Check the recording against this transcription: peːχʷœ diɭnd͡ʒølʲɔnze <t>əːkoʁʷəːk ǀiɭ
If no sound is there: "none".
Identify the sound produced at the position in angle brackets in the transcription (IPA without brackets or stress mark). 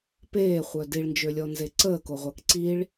ǀ